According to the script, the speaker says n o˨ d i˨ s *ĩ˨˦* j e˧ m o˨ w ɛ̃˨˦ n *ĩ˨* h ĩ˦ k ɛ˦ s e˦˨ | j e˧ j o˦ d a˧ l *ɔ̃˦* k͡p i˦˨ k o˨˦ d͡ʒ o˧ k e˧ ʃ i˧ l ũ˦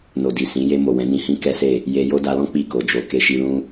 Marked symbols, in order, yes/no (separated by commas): yes, no, yes